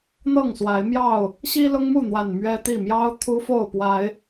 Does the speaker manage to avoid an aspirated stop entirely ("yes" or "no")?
no